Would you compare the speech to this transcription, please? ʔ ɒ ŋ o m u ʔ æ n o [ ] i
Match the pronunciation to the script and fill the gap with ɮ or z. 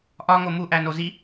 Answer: z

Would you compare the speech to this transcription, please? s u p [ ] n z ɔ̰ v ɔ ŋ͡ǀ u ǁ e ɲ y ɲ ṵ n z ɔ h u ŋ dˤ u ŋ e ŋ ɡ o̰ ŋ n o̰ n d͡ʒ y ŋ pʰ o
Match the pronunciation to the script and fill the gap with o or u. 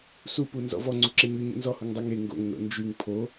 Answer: u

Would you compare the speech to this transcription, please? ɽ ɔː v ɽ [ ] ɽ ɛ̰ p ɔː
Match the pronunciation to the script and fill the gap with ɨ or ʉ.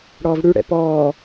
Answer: ʉ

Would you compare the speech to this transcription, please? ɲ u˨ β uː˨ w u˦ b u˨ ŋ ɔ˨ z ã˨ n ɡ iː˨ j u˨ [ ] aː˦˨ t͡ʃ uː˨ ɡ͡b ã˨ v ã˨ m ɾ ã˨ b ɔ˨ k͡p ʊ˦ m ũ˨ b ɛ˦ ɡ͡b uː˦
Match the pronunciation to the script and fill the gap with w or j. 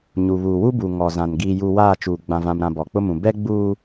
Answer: w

